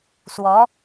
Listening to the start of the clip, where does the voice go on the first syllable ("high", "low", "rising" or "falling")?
rising